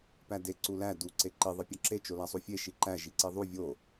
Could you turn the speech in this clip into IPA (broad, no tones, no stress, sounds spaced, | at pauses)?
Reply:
p æ d e ǀ u l æ d u ǀ e ǃ i ðˤ i pʲ ɒ ǁ e t͡ʃ o l æ sˤ u fʲ e ʃ i ǃ æ ʒ i ǀ i ðˤ u vʲ o